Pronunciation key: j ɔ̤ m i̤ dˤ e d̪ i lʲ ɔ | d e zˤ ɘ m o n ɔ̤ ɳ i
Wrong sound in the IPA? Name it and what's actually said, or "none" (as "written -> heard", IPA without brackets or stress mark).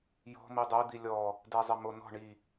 i̤ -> i